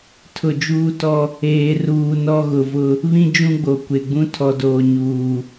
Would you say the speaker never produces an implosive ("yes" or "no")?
yes